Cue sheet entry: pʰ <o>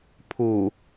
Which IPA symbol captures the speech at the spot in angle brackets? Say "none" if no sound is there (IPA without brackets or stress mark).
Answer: u